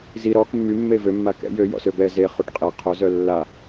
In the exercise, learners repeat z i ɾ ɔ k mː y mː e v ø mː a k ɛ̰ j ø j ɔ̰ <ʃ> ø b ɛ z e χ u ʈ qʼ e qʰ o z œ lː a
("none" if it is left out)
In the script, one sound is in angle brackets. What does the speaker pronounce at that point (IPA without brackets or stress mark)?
s